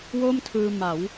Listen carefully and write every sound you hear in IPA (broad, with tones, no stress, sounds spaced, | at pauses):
w o˥˩ m tʰ ɯː˧ m a˩˦ w